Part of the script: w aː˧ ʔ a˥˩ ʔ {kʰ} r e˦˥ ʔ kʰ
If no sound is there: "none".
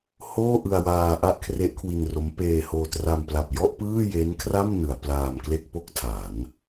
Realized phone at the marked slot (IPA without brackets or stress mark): kʰ